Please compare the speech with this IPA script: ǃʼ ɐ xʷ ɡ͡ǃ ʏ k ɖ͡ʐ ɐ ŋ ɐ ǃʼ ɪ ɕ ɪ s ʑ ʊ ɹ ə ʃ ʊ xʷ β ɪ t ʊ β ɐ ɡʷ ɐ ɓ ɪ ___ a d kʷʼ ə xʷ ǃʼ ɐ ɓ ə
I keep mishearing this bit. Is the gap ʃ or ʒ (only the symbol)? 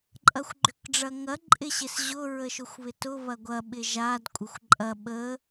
ʒ